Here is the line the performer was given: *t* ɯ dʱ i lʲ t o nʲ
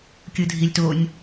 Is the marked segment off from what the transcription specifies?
yes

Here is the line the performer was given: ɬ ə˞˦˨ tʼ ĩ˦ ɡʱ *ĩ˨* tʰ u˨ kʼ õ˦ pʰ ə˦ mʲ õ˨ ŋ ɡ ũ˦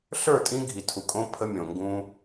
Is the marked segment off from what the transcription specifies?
yes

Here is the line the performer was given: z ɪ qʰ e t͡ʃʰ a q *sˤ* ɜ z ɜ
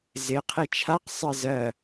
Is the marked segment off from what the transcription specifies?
no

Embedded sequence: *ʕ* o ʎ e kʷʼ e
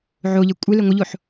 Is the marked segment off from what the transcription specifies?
no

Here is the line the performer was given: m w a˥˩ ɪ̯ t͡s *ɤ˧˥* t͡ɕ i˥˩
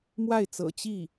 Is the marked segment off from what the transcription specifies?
yes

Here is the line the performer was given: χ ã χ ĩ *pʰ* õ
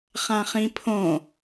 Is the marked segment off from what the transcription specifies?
no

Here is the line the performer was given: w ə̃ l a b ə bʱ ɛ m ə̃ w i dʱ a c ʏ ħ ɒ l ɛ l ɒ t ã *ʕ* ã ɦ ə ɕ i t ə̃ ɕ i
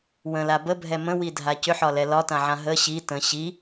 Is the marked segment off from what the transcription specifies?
no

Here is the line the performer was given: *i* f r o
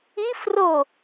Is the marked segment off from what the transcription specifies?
no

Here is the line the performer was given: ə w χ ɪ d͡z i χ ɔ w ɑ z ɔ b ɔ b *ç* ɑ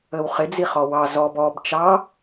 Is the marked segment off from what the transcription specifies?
yes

